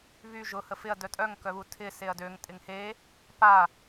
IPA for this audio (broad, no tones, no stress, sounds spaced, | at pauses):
β y ʒ ʊ h ə f ɪ ɐ̯ d œ tʼ œ ŋ k œ β u tʰ ɪ s e ɐ̯ d ø ŋ tʼ ɪ ŋ h e | p a